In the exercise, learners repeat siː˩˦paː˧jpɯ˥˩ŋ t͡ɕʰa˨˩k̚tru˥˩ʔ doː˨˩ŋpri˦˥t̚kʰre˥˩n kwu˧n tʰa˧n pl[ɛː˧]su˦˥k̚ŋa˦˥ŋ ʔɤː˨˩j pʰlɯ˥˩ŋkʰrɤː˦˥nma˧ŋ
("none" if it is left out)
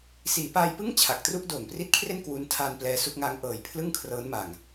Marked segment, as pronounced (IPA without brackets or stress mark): ɛː˧